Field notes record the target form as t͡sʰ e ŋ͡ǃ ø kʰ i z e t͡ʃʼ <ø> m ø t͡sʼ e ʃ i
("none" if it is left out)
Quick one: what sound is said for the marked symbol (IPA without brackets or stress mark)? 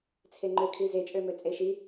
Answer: ø